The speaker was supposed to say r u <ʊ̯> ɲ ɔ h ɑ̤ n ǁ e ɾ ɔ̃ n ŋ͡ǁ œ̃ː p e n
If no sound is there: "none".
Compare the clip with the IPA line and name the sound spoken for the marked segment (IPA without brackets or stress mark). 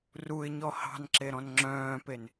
ɪ̯